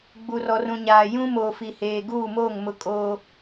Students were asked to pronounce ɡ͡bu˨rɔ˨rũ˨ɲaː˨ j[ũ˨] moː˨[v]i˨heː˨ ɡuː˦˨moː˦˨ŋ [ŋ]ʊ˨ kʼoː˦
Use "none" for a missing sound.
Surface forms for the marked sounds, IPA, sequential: ũ˦, f, m

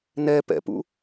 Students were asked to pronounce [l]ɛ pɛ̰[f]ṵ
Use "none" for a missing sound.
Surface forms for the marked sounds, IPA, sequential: n, p

